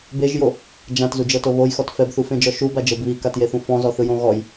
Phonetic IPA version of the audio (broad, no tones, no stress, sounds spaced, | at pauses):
b e ʒ j o | d͡ʒ ã t z u d͡ʒ ɤ t o β o j x ɔ t f ɛ b θ u f ẽ d͡ʒ ɔ ʃ u b a d͡ʒ ɤ b β i k a t j e θ ũ f ɔ̃ z ɔ θ ɯ j õ ɣ ɔ j